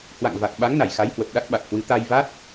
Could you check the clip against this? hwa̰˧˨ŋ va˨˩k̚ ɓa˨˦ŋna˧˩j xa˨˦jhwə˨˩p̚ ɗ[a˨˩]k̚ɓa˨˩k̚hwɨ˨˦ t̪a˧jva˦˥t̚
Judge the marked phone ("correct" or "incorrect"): incorrect